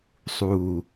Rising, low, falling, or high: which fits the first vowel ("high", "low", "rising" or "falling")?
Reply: low